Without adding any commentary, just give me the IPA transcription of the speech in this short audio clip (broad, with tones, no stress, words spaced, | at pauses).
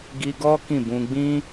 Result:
ɡi˧ɡɔ˦ kĩ˦˨bũ˧ ɡ͡bĩ˦